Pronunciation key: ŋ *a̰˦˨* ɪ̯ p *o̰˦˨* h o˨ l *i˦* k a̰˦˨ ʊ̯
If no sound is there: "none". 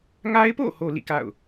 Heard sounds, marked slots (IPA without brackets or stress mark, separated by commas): a˦, o̰˦˨, ḭ˦˨